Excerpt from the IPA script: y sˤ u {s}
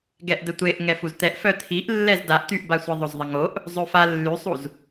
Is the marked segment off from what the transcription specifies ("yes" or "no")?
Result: yes